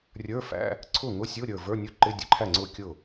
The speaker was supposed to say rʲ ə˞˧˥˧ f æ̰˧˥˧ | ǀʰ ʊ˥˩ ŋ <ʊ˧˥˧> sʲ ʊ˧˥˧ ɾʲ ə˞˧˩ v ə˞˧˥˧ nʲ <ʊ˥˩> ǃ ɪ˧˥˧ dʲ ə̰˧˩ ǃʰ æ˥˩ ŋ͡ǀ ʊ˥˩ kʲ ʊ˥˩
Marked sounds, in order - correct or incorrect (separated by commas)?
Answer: correct, correct